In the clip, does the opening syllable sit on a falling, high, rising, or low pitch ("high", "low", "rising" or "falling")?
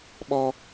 high